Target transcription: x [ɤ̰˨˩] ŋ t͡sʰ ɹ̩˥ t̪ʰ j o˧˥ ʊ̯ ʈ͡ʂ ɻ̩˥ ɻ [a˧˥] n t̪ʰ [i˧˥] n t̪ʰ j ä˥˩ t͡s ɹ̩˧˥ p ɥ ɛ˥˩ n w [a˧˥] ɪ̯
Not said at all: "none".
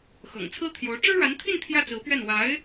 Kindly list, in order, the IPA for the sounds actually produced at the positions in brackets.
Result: ɤ̰˨˩, a˧˥, i˥˧, a˧˥

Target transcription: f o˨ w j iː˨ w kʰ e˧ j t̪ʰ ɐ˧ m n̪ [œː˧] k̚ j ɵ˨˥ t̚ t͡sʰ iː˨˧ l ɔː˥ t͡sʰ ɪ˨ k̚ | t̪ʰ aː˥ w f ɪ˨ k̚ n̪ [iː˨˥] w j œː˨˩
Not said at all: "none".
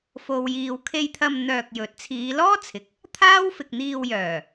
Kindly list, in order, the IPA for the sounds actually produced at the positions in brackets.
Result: œː˧, iː˧

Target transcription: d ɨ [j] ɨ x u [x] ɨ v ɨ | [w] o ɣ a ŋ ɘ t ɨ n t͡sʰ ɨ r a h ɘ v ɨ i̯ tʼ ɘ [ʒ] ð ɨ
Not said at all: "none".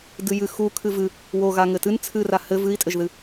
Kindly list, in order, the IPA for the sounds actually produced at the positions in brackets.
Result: j, kʰ, w, ʒ

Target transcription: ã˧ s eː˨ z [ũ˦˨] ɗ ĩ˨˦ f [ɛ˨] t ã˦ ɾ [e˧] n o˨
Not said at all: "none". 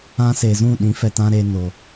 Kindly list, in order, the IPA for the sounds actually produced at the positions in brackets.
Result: ũ˦˨, ɛ˨, eː˧

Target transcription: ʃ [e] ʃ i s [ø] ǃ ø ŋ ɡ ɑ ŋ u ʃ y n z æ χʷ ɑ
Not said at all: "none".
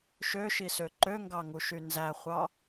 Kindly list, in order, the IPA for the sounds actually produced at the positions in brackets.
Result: ø, ø

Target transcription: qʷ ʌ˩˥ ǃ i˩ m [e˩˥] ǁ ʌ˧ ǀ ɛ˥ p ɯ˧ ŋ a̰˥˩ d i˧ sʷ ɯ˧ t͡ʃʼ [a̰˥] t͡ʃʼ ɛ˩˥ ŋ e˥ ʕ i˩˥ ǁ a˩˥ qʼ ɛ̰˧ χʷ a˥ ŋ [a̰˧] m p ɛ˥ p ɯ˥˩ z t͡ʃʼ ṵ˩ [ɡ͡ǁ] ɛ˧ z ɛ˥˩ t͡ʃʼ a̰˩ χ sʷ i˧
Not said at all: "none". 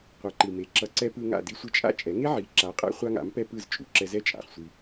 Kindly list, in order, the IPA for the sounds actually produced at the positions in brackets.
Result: e˩˥, a̰˥, a̰˩˥, ǁ

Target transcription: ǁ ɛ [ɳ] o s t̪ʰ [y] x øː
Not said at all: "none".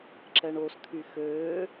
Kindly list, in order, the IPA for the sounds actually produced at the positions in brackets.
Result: ɳ, y

